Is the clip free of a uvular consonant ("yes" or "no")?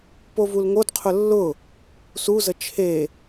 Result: no